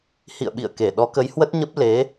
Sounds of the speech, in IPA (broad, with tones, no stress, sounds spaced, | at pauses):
h ḭ˧˨ ə̯ ɓ ḭ˧˨ ə̯ k e˧˩ ɗ ɔ˨˦ k ə˨˦ j h w ə˦˥ t̚ ɲ ə˦˥ p̚ l e˨˦